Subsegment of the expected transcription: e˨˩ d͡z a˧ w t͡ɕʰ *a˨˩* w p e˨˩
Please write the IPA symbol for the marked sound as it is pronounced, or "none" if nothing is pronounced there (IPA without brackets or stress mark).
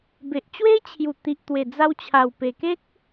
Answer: a˨˩